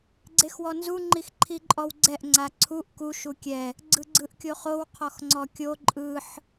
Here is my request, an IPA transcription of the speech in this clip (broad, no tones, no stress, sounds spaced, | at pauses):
ɡ͡ǀ e x w ɔ n z u ŋ͡ǃ i x ǃʰ i ǃʼ ɔ w ɡ͡ǀ ɛ ʔ ŋ͡ǀ a ǀʰ u ʔ k u ʃ u kʲ ɛ | ɡ͡ǀ ɯ ɡ͡ǀ ɯ ʔ kʲ o χ o w qʰ ɔ x ŋ͡ǀ ɔ kʲ o ǃʼ ɯ ħ